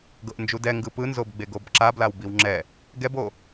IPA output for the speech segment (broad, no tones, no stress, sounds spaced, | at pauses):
ɡ ɤ ʔ n d͡ʒ u d ɛ ŋ ɡ ɯ p ɯ n z o b ɡ͡b e ɡ o b ǁ a b l a w b i w ŋ͡ǁ ɛ | ɡ ɛ b o